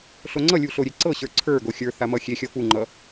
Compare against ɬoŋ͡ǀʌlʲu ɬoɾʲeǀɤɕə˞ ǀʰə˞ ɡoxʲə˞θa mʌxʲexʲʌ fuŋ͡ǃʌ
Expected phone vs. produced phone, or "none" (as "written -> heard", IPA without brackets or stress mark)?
none